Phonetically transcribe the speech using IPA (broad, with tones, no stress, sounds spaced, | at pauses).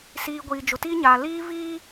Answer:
s iː˨ ɡʷ iː˨ d͡ʒ ʊ˨ t iː˦ ɲ aː˨ l iː˦ v iː˦